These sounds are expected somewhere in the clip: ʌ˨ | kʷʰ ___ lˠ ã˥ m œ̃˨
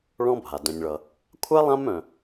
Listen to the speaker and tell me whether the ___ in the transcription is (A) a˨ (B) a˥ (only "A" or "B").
B